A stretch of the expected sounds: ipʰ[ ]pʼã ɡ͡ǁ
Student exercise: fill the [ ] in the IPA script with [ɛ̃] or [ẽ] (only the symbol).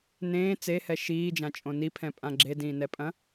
ɛ̃